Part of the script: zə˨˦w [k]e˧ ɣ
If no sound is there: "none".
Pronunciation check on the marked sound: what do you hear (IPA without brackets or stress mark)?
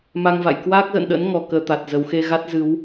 x